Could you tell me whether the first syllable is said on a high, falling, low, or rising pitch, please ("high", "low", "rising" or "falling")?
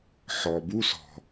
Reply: low